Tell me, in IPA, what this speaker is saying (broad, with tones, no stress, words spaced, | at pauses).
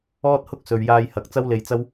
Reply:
ɔː˥t̚hʊ˥k̚ sɵ˨ɥjaː˧jhɐ˨k̚ t͡sɐ˥wle˧jt͡sɐ˥w